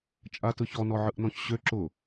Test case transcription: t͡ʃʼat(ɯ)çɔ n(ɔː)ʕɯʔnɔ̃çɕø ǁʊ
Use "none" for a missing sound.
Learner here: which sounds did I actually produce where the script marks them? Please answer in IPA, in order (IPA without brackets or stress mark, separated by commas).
ɯ, ɔ